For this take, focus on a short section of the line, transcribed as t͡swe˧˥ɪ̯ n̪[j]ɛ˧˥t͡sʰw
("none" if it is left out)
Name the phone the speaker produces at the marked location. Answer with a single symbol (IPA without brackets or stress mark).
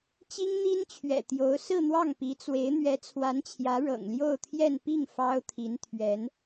ɥ